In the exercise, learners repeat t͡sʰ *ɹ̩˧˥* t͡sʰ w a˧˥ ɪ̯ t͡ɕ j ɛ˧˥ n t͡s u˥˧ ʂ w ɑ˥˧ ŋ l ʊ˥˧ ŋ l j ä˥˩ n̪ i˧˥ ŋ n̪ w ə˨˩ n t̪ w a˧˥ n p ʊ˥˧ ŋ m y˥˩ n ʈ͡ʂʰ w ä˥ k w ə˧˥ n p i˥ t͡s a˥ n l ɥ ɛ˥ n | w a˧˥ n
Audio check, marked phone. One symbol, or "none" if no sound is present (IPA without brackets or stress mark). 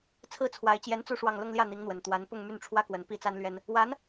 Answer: ɹ̩˥˩